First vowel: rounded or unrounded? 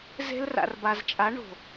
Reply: unrounded